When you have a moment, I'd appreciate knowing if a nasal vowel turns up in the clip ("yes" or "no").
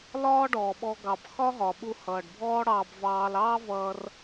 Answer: no